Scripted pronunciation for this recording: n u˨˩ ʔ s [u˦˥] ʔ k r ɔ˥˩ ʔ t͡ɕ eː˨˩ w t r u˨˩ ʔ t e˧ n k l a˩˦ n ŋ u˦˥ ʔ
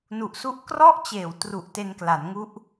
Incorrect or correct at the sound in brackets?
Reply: correct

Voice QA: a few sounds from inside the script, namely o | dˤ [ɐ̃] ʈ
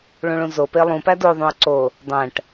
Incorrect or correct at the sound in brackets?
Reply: incorrect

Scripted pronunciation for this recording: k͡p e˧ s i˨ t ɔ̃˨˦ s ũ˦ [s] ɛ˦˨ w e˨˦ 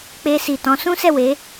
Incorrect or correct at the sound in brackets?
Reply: correct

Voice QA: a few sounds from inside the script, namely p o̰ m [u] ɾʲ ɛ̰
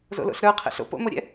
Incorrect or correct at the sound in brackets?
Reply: incorrect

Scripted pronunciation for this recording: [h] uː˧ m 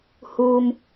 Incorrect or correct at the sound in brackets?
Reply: correct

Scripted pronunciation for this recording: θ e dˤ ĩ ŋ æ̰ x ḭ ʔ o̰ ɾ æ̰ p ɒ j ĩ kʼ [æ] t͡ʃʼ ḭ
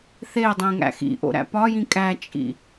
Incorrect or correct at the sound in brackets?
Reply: correct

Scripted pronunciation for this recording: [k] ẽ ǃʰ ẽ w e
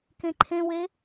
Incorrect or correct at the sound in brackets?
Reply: correct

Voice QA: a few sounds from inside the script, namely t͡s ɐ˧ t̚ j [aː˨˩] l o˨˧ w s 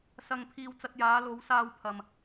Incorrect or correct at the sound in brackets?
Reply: incorrect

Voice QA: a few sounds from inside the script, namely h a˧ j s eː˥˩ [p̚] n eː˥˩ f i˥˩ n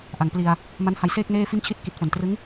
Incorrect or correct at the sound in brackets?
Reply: incorrect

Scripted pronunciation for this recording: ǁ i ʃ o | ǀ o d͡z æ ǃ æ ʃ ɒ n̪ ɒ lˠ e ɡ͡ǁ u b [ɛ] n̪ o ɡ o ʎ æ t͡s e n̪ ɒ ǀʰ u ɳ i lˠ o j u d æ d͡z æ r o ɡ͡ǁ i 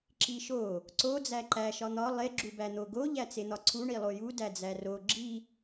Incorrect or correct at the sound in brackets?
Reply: incorrect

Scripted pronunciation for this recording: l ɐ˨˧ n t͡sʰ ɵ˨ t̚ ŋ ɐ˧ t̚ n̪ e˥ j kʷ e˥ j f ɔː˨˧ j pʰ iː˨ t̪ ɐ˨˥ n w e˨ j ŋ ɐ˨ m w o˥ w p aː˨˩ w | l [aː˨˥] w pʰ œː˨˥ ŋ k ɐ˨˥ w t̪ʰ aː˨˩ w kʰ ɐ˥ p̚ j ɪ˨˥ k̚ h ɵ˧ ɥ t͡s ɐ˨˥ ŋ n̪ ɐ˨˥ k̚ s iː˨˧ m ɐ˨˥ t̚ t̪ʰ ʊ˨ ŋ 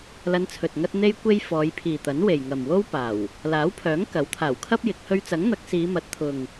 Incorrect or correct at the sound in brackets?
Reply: correct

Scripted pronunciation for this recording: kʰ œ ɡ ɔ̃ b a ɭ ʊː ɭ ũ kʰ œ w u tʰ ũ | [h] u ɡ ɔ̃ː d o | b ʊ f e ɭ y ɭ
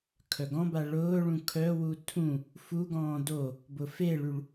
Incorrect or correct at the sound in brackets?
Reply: incorrect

